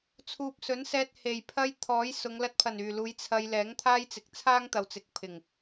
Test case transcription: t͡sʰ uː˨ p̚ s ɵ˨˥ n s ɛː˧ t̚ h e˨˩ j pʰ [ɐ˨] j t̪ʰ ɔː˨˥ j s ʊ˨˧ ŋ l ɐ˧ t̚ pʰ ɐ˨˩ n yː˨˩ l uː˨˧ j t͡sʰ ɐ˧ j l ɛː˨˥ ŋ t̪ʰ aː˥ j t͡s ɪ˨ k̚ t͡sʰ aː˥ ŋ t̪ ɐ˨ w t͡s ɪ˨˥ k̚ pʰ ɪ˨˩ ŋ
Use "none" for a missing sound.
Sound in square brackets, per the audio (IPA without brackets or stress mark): ɐ˥